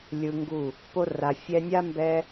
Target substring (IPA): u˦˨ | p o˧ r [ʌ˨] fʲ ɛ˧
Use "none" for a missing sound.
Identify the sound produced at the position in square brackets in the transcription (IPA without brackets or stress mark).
a˨